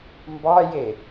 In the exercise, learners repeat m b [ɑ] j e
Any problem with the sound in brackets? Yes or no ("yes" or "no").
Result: no